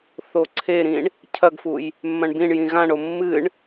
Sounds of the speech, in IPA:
θoǀʰeɾĩɳ | cʰɐɡfuj | mːɐ̃ɳbĩɳjĩ ɣãɳo mːɨɳ

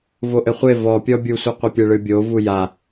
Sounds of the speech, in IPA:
voʔɘχʷe vɔpʲɔ bʲusʷiqʷipʲe ɭɨbʲovu ja

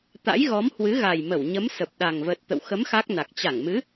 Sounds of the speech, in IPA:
t̪a̰˧˥jɣɔ˨˦mhwɨ˨˦ɣa˨˩j mə˧˩wɲə˨˦m sə˨˩p̚ɗa˨˩ŋ və˨˩t̚ t̪ə̰˧˨wxə˨˦m xa˦˥k̚na˨˩k̚ t͡ɕa˧˩ŋmɨ˨˦

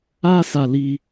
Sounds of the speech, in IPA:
a˦sa˧li˧

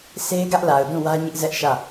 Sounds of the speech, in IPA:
sʰe˦ɪ̯ɡä˦ʔla˨ʊ̯dũ˦˨ wä˦ɲɪ˦ʔzɛ˦ʔ ʃä˦˨

